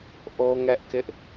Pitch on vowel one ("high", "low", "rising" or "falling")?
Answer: high